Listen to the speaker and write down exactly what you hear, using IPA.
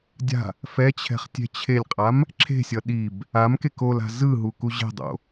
dʲa̤ | fɛt͡ɕʰɛ̤χ tʲɛ̤t͡ɕʰelʲqʼam | ǁʰe̤sʲʌ ɗib | amkek ola̤ zɯɦu kuʑɛ̤dˤo̰

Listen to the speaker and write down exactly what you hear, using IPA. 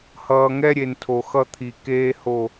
hʌː˨ŋɛ˦ɾʲe˨ntʰo˨ xʌ˦t̪ʰi˨ keː˦ho˦˨

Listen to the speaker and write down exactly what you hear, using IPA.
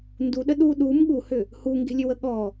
nduɗə ɗu ɗum ɠuhʏ | huŋɡe̤lʲʏwə ɠɔ

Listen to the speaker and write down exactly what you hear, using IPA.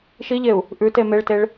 ʃiʎeu̯ | ʔʉte meɭteɭ

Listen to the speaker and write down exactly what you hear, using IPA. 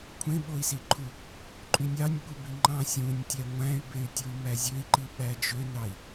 kʷʰẽɓoi̯siǃʰu | ǃʼynʲɑnʲ ɓubiŋ͡ǃɑ̃ sʲũnʲtʲæ ŋʷæ̃y̯bey̯ tʲuy̯mæzʲøi̯ǃi ɓæd͡ʒønɑi̯

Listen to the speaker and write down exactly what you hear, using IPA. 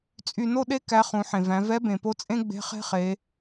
t͡sʼy˧no˥ɗe˥ kæ˧˥ χũ˩˧ħẽ˩væ̃˩˧ vɛ˧˥bẽ˩po˧˥t͡sʼẽ˥ ɡ͡be̤˧˥χe̤˥χe˩˧

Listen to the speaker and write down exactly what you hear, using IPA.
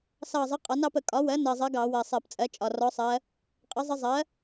sɑ˨˩zˤə˩˥ qʼɒ˩˥nɑ˩˥pə˧˩˧ kʼɒ˩˥wɜ˩˥nɜ˨˩ zˤɜ˧˥ɡɑ˧˩˧ wɜ˨˩sˤɜ˧˩˧pt͡sʼɜ˩˥t͡ʃʼɒ˨˩ rɔ˧˥sˤɜ˧˥ | qʼə˩˥zˤə˧˥ zˤɜ˩˥

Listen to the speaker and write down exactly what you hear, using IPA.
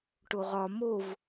ʈoʁɒ mov

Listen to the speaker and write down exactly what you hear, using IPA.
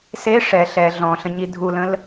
se ʂɛ ɬɛ ɮɔ̃ɬə̃ɲi dʱulə̃l

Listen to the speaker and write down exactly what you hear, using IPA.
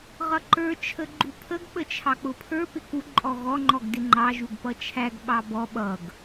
ʁʌǃə˞ t͡ʃʰəɡ͡ǃupʰəɡ ɓət͡ʃʰɑk͡pʊpʰə˞ pɪku ǃʼɔɣɔ ŋ͡ǃɔɡdɪŋ͡ǃɑ ʒuɡpʌt͡ʃʰæɡ ɓɑbɔ ɓʌɡ

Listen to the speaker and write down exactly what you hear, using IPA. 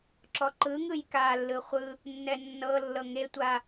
ǁɔǃɯŋɯj kalːɯ χʷɯ | nːɛnːɤlːɤ ŋetʷa

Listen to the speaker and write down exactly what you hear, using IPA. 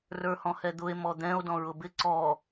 rə˞hɔ̃hɛd̪ʊe̯ mɔd̪ɛ̃o̯ dɔ̃ɹʊbɪ ǀɔ

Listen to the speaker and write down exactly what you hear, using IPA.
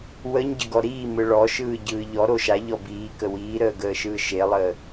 wəɲɟəɡɔ ɾiːmɯ ɭɔʃɯːɟɯː ʎɔɾo ʃaʎɔ biːkə wiːɾəːɡəːʃɯː ʃelˠəː

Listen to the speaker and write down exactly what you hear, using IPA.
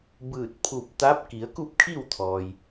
bɯː˧˩t̚pʰu˧˩p̚ t̪a˧˥p̚ ki˩˧ə̯ku˥˨p̚kʰi˥˨wt̪ʰɔː˩j

